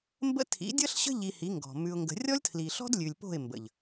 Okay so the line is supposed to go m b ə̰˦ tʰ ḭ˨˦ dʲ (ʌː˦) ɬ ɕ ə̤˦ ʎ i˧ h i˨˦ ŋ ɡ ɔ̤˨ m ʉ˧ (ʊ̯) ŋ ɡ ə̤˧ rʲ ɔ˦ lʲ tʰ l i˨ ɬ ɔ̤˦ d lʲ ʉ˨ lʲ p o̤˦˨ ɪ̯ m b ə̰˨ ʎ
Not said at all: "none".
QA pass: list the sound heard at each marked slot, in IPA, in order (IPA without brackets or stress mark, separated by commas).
ʌ˦, ʊ̯